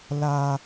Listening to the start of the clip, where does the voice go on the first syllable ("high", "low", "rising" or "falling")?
high